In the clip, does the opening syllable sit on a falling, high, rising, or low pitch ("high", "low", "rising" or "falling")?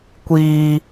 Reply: low